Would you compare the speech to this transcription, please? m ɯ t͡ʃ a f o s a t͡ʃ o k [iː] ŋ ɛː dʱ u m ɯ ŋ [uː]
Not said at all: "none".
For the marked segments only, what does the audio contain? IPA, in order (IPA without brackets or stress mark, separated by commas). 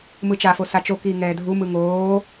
iː, oː